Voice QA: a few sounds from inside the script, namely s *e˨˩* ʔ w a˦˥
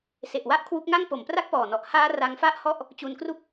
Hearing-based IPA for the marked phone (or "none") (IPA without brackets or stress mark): e˨˩